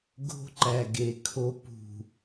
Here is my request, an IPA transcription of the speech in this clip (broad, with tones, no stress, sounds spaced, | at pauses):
ɡ o̤˦ ǃ æ˨ ɡ e˨ kʰ o˨ p ṳ˨